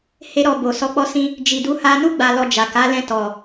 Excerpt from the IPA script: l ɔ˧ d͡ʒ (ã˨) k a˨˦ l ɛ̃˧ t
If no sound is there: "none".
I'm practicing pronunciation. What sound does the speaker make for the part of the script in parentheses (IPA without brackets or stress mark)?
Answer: a˨